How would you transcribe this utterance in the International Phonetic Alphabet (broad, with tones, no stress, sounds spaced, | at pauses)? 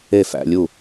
e˥˩ f æ̰˧ lʲ u˥˩